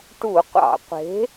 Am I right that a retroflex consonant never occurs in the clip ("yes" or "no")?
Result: no